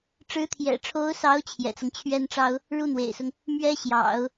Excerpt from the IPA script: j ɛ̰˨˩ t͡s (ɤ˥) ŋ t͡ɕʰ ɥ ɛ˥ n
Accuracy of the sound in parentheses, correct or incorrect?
incorrect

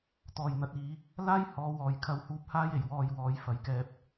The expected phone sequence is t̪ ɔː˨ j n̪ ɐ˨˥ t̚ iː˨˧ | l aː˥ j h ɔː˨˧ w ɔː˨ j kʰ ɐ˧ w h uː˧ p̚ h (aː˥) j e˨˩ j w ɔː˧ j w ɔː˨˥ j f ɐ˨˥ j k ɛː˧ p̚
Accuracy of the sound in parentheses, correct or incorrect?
correct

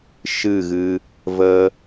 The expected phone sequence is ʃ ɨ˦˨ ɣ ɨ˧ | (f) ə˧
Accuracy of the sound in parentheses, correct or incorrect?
incorrect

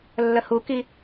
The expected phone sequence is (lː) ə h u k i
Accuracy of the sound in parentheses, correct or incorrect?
correct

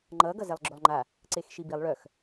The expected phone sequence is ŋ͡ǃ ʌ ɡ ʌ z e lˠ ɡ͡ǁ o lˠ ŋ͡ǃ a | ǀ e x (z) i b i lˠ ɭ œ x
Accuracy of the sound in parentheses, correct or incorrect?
incorrect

